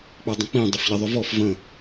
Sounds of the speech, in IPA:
k͡p ə˞ dˤ ə̃ k͡p ĩ dˤ ɪ f ʎ ɪ ðˤ ʏ v ɔ f v ə̃

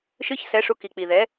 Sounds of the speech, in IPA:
ʃ ɯ˧˥˧ ç s ɛ˨˦ ʂ u˨˦ k i˨˩ k͡p i˨˩ ð ɛ˨˦

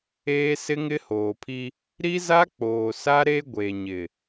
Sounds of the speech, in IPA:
eː˦ s ɪ˦ ŋ ɪ˦ h oː˨ pʰ i˦ | ɾ i˦ z a˦ k͡p oː˨ s a˦ ɾ e˦ ɡʷ e˨ ɲ ɪ˨

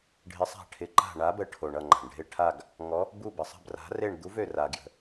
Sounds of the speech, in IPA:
ɖʱ ɪ˧˥ sˤ a̤˨ ʈʰ ɪ˧˥ ǃ a̤˥˧ ɳ a˧˥ b ə˧˥ ʈʰ o˨ ɳ ʌ˥˧ ŋ͡ǃ a̤˨ ɳ ɖʱ ɪ˥˧ ʈʰ a˥˧ ɡ | ŋ ɔ˧˥ | b u˥˧ b ə˨ sˤ ə̤˥˧ b r a̤˧˥ r e˥˧ ɳ d̪ u˧˥ v ø˨ r a˨ ɡ j ə̤˨

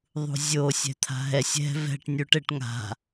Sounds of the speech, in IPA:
ðˤ ṳ zʲ o sʲ ɛ̤ t̪ʰ a̤ ɦ ɛ sʲ ɛ̤ v ɛ̤ ʈ nʲ u ʈ e ʈ ŋ a̤

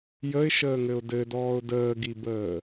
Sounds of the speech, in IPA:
j ə ɪ̯ ʃ əː ŋ ɘ ʊ̯ d ɘ d ɔː ʊ̯ d əː ɡ i b əː

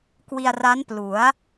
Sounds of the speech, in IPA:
k w i˧ a̯ r a˦˥ n p l u˩˦ a̯

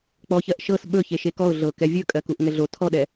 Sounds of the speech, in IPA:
k͡p ɔ ç ɜ ʔ ʃ ɤ s ɓ ɵ ç e ʃ e k ɔ ʊ̯ ɮ ɤ k ɛ vʲ ɵ kʼ ɜ k u ʔ ŋ ɛ ɮ o tʰ ɔ ɗ ɛ

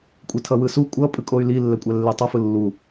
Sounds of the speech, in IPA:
kʷʼ i tʰ ʌ w ɯ s u kʷʼ ʌ pʼ ɯ kʼ o y̯ l i lː ɛ kʷʼ ɛ lː e tˤ ʌ f ɯ lː u

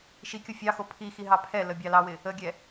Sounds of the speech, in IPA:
ʃ i kʲ o fʲ ɑ x o pʰ i x i ɦ ɑ pʰ ɛ l ə bʲ ɑ l ɑ w ɪ | ə ɡʲ ɛ

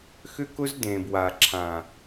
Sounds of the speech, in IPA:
x ʏ˦ k ʊ˦ z d ẽ˨ b w a˨ ǁʰ ã˨

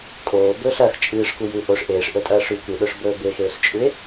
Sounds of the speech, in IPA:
kʼ oː b ɵː ɬ ɐː x t͡ʃʼ ɨː ʂ k u j ʉ ʔ o ʂ ʔ eː ʂ ʔ ɵ tʼ ɐː ʂ ʉ k ɨ ɗ ɵ ʂ b ɵː b e x eː ɬ t͡ʃʼ ʉ e̯

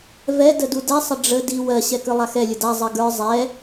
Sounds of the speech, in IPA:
v ɛ d ə d u d ɛ sˤ ə ɖ͡ʐ ə d i w ɜ ɕ ɛ k ə˞ lˠ a x ɛ lʲ ə d a zˤ ɜ ɡ ə˞ zˤ ɛ

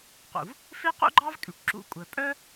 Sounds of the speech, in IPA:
q ṵ˩ v | f e˥ q ṵ˥ ɡ͡ǃ ɑ˥ v kʼ y˩ ʈ ǁ ṵ˨ kʷʼ œ˩ pʼ œ˦

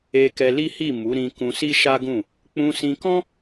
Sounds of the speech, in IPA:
e˧ k ɛ˧ l i˦ h i˦˨ m u˨˦ ɾ ĩ˧ k ũ˧ s i˦ ʃ a˦ ɡ ũ˦˨ | k͡p ũ˧ s ĩ˧ k ɔ̃˦

